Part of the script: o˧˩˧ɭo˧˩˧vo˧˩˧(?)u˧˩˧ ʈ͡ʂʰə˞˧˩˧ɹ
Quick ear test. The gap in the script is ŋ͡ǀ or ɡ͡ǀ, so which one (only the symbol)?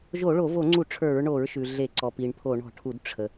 ŋ͡ǀ